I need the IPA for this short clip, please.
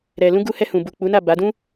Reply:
ɾ ɛ˨ l ũ˧ ɡ u˧ h ɛ˧ h ũ˨ b u˨ k͡p u˨˦ n a˦˨ b a˨˦ d ũ˦

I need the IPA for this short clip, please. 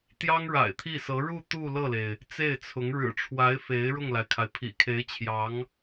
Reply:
t̪ j ɑ˥ ŋ ɻ a̰˨˩ ɪ̯ t̪ʰ i˥˩ s ɤ˧˥ ɻ u˥˧ t̪ u˥˧ l ɤ˥˩ l e˩ ɪ̯ | t͡s e˥˩ ɪ̯ t͡sʰ ʊ˧˥ ŋ ɻ ɻ̩˨˩ ʈ͡ʂʰ w a˧˥ ɪ̯ f e˧˥ ɪ̯ ɻ ʊ˥˩ ŋ l a˩ ɪ̯ kʰ a˩ ɪ̯ pʰ ḭ˨˩ kʰ e˧˥ ɪ̯ t͡ɕʰ j ɑ˧˥ ŋ

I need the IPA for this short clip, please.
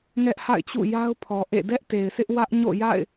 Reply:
ŋ ɛ˦ ʔ h a̰˦˨ ɪ̯ t͡ɕ ṵ˦˨ j a˦ ʊ̯ pʰ ɔ˨ ʔ ḛ˦˨ d ɛ˦ ʔ t e˨ ɪ̯ sʰ ɪ˦ ʔ w ä˦ ʔ ɲ o̰˦˨ j a̰˦˨ ɪ̯

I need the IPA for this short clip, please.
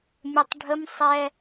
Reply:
mʲ ə tˤ ɖʱ ə m sˤ ɛ

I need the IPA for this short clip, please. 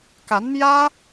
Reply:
k a˧˥ n m j ä˥

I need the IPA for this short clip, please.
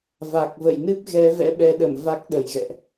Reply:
v a˨˩ k̚ v ə̰˧˨ j n ɨ˦˥ p̚ ɣ ɛ˨˦ v ɛ̰˧˥ ɓ ɛ˨˦ ɗ ə˧˩ m v a˦˥ k̚ ɗ ə˨˩ j ɣ ɛ̰˧˨ ʔ

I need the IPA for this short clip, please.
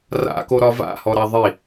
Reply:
r a̰ k o ɾ ɒ v a̰ h ɔ ɾ a ðˤ i

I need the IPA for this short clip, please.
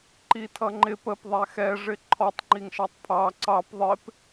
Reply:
ǃ i tʰ ʌ ŋ͡ǃ ɪ p ə p ðˤ æ x ɛ ʐ ɪ ǃʰ ɔ tˤ ŋ͡ǃ i ŋ ʃ ɑ tˤ pʰ ɑ ǀ ɑ p ðˤ ɪ p

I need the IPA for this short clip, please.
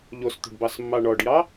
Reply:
ʎ o s t̪ o̤ ɖ b ɑ s mː ɑ ɳ ɔ ɖ j ɑ

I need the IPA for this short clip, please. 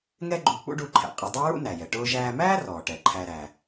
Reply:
ŋ ɛ˥ ɡ͡ǃ u˧ k͡p ṵ˥ ɖ u˧ ǃʰ ɛ̰˩ qʼ ɪ˧ dˤ ʊː˥ ɹ ṵ˥ n æ˩ j ɛ˩ ʈ ʊː˧ ʒ æː˧ m æː˥ r ɔː˩ ʈ ɛ˩ ǃʰ æ˧ ɾ æ˩

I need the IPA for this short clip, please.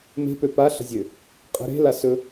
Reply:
m e̤ p ø p a ɬ ə̤ zʲ ø | qʼ ə̤ ɾ e̤ l a s ɵ

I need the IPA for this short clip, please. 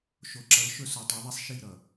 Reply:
ʃ o˨ ǁ ʌ˨˦ l ʃ ɵ˦ s o˨ tˤ i˨˦ ðˤ i˦ sˤ ʃ i˦˨ ɾ ʌ˨

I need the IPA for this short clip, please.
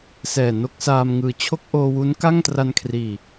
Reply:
s ɛː˨˩ n o˥˩ k̚ s aː˧ m ŋ ɯː˨˩ t͡ɕʰ o˥˩ k̚ ʔ oː˧ w u˦˥ n k a˥˩ ŋ t r a˧ n kʰ r iː˨˩

